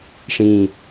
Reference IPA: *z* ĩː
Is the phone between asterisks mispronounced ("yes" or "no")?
yes